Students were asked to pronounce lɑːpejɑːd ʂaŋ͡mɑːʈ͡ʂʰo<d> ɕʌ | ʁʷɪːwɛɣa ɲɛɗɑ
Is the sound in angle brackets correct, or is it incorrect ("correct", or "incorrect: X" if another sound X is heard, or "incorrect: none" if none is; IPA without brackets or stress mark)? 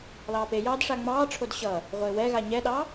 correct